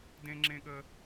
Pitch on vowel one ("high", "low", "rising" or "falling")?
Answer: high